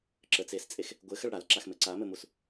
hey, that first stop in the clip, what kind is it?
click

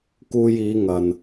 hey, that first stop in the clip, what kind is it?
plain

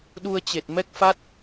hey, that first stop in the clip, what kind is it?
implosive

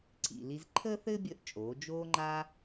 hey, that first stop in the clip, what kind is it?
click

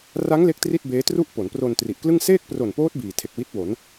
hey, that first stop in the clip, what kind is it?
plain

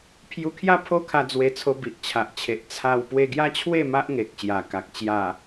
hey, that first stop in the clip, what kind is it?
aspirated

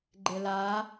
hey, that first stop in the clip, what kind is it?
click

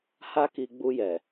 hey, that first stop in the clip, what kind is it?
plain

